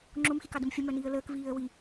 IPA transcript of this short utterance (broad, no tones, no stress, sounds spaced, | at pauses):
ŋ͡ǁ o m x i k ɑ d ə m fʲ ə m œ n iː ə̯ l əː k v iː ə̯ w i